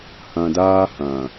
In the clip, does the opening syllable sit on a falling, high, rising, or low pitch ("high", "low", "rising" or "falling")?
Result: low